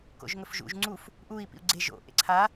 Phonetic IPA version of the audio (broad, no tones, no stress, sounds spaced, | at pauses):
k o̰ ʒ ŋ ɵ f ʒ ṵ ʒ ŋ͡ǀ u f | ʔ u i̯ p ḭ u̯ ɡ͡ǀ e ʒ o̰ ʔ ḛ ǀʰ a